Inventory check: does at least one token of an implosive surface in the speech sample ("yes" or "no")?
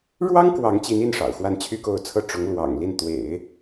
no